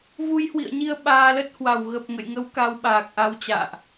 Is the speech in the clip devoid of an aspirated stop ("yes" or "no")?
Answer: yes